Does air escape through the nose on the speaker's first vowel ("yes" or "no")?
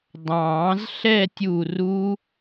yes